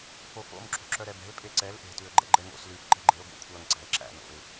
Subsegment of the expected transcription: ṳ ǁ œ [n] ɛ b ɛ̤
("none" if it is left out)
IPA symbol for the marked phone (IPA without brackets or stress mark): ɾ